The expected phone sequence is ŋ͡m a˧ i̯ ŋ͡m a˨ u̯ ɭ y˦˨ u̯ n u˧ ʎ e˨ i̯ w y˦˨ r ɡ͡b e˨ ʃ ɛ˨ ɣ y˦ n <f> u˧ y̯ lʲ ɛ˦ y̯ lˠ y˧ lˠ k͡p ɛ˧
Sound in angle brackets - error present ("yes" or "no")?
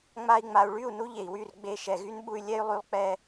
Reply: yes